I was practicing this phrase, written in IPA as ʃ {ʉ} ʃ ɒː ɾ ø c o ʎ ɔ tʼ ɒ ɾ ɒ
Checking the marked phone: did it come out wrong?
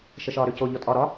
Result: yes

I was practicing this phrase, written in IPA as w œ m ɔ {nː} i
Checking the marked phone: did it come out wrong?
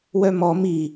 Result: yes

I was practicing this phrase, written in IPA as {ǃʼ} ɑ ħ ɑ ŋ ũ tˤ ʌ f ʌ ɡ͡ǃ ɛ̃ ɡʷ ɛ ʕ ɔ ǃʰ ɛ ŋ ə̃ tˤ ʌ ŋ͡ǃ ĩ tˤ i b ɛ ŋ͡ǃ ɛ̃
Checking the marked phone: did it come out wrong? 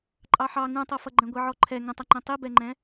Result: no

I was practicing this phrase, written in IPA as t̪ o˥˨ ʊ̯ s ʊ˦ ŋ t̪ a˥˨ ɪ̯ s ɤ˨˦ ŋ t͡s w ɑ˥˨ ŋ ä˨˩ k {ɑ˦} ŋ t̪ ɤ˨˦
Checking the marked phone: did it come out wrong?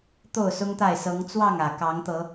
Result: yes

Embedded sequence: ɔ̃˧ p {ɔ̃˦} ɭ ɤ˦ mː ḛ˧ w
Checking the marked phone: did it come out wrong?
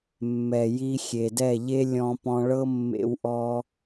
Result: yes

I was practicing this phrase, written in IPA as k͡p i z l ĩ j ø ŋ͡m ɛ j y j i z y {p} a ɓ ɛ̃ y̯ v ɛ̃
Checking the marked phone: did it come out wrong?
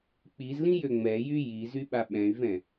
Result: yes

